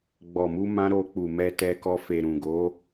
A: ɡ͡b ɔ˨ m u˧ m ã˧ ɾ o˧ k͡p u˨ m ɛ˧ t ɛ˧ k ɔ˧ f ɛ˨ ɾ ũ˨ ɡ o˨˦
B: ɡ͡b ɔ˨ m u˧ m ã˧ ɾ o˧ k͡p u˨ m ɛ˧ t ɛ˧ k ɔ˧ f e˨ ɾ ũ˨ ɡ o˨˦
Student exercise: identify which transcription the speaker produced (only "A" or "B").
B